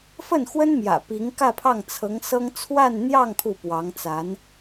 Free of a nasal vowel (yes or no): yes